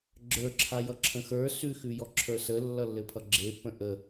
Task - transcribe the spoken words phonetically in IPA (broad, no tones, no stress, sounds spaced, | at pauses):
ɡ͡ǁ ə˞ ǁʰ a j ʌ ǁʰ ə̃ x ə˞ s ʉ x ʉ j ɔ ǁʰ ə˞ s ə lː ʌ lː ɘ pʰ ʌ ɡ͡ǁ e p ə̃ ʔ ə